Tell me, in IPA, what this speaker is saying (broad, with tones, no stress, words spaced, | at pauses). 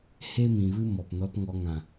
he˦mĩ˨vɨ˦ mɔ˨pnɔ˧t ŋɔ˧ ŋã˨